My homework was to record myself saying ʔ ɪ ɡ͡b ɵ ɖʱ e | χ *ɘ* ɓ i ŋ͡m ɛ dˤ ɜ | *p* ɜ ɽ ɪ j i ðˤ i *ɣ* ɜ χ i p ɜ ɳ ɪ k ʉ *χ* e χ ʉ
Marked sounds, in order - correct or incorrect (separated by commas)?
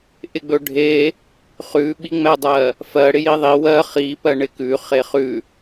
incorrect, incorrect, incorrect, correct